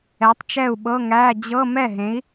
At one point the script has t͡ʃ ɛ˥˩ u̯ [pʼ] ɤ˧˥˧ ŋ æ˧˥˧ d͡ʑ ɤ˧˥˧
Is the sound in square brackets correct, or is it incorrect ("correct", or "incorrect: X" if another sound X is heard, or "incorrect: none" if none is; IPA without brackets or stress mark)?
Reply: incorrect: ɓ